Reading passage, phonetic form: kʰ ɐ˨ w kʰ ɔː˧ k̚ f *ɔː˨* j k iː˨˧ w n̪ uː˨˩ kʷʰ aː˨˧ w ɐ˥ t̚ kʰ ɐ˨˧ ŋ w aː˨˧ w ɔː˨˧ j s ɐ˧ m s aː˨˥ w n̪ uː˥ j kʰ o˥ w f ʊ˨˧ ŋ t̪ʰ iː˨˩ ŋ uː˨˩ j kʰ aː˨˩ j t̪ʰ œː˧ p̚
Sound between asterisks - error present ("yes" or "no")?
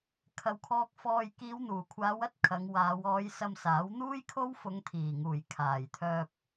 no